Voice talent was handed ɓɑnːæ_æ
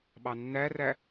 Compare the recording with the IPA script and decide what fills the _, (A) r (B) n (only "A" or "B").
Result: A